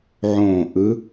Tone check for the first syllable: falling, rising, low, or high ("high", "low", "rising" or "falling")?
falling